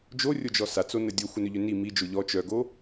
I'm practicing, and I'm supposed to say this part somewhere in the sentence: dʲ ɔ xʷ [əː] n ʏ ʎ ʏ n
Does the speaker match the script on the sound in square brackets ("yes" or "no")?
no